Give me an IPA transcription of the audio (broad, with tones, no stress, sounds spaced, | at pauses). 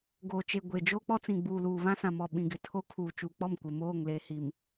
ɡ oː˨ t͡ʃ e˨ ɡʷ e˨ d͡ʒ oː˦ k͡p ɔ˦ t͡s ĩ˨ ɡ͡b uː˨ l uː˨ β ã˦ s ã˨ m ɔ˨ ɓ ĩ˨ ɡ ɪ˨ tʰ o˦ kʰ uː˨ t͡ʃ uː˨ k͡p ɔ˦˨ m kʷ ɪ˨ m oː˦˨ ŋ l e˨ h i˨ m